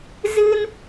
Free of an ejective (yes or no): yes